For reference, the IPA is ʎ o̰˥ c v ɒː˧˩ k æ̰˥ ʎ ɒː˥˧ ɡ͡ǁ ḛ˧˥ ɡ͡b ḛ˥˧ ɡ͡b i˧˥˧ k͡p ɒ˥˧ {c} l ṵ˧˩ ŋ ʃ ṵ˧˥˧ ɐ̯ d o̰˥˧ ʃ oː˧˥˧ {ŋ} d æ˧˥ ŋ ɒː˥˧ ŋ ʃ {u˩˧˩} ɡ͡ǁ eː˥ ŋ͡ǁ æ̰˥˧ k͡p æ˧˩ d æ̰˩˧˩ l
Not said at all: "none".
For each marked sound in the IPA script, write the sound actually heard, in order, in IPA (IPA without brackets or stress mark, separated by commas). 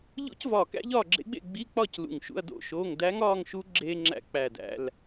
c, ŋ, u˧˥